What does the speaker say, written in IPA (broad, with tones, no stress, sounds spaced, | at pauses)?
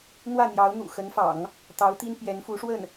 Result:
n̪ w ä˥˩ n̪ j ɑ˧˥ ʊ̯ n̪ ṵ˨˩ x ə˧˥ n f ɑ̰˨˩˦ ŋ | t̪ ɑ˧˥ ʊ̯ t̪ i˥ n p j ɛ˧˥ n f u˧˥ ʂ w ə˥˩ n